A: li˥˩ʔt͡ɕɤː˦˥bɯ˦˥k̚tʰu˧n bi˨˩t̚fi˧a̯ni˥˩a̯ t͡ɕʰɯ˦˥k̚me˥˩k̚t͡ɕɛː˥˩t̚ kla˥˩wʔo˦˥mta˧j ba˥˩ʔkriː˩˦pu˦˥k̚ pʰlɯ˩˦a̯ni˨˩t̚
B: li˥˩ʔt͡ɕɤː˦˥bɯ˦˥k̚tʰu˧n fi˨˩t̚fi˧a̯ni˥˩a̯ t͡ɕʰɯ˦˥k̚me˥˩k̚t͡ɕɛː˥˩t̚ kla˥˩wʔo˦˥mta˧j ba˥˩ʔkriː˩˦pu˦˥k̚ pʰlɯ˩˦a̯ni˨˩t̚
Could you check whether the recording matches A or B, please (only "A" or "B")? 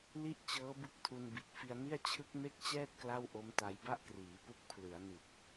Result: A